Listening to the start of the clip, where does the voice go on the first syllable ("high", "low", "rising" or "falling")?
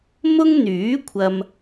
high